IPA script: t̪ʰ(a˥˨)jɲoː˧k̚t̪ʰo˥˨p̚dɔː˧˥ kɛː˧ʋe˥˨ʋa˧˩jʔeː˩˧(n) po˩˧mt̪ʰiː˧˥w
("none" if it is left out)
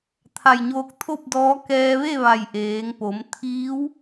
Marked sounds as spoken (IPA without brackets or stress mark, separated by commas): a˧˩, ŋ